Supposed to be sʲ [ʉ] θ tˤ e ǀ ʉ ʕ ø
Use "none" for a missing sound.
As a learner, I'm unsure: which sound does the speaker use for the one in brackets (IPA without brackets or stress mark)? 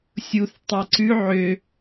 u